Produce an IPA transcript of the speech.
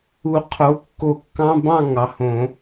u˨˩˦qʰo˩˥kːo˨˩˦ kːɑ̃˧˥˧bɑ̃˥˨ ŋɑ˩˥hõ˨˩˦

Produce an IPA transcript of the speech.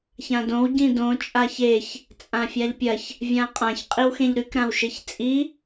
çãdõw ɟĩdõ t͡ʃʼaçeç | t͡sʼãfʲaʎpʲɐç | vʲãqʼãç qʼiwxẽʎɾʉk ɾãwʃeçt͡sʼi

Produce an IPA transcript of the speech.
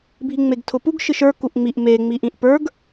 bʱiŋ͡meɡtʰʊpuɡ ʃɨʃə˞ kuʔŋ͡miʔ me ŋ͡miʔĩʔpə˞ɡ

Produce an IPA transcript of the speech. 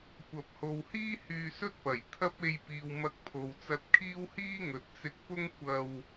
kʷɐ˨p̚ho˨whiː˥ hyː˧sɵ˥t̚ pɐ˨˩j t̪ʰɐ˥p̚ e˧jpiː˨w mɐ˧k̚pʰo˨wt͡sɐ˧t̚kʰiː˥w hiː˥ŋɵ˨t̚t͡sɪ˧k̚pʊ˥ŋ kʷɐ˧w

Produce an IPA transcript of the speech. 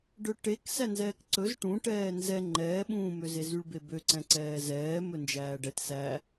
ɖɵʈek sænzɛːkǀɵz ʈũ ʈɛːnzɛ ŋ͡ǃɛːɓũːmøze zyɭbebøǀɛ̃ ǀɛːzɛː mɵnd͡ʒæːɖɛt sæ

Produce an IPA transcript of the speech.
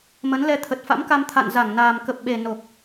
mə˨˦nlɛ˧ t̪ʰə˨˩t̚fa̰˧˥mka˧m t̪ʰa̰˧˨nza˧˩ŋnaː˨˩m kə˨˩p̚ɓe˨˩ no˨˩k̚

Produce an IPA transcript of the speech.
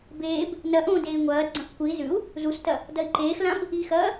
beːb | nɐʔõː deːi̯ŋʷɐːdɡ͡ǀɐ̃x kʷɨi̯ zʉu̯ | zustɐ | dɐi̯ǃeːxlãb | ixɐː

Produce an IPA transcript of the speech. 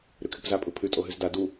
ɾʉkʰɪpza pʼɯpʰʉ tʼoɦʉzda du

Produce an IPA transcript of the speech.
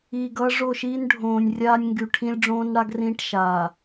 iː˨ɡʌː˦ ʐo˦˨ʃiː˦n ɖʱõː˨nʲ rʲaː˦nʲŋɡy˨ʈʰĩ˦lʲ ɖ͡ʐõː˦nɽa˦ɡrĩː˦ʈ ʃaː˨

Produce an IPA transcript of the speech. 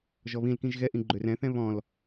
ʒɔβĩlkĩʒ ɣɛʔĩ ɡ͡ǃørɛ̃θɛ̃ βɔ̃l

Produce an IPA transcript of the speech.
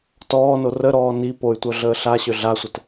tɔːno rəɾɔː ni poy̯tʷœ ɮəːɬaɕø ɮasʷət

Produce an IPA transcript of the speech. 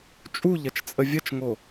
t͡ʃʼuʎɐt͡ʃt͡sʼə vʲɐt͡ʃŋo

